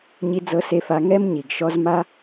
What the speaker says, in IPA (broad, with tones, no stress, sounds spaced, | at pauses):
ɲ i˧˥ d͡z ɤ˧ s e˧ f a˧ ŋ ɛ˥ m ɲ i˩ ɡ ʃ ɔ˧˥ z m a˥